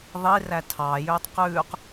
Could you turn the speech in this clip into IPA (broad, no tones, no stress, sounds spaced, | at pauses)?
ðˤ i r æ tʰ ɑː j øː tˤ q ʉː q